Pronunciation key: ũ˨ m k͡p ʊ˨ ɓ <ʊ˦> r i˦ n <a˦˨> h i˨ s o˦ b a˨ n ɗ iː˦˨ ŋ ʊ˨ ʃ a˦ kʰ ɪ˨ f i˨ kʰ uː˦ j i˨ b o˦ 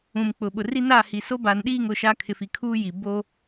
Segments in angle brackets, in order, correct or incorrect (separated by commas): incorrect, correct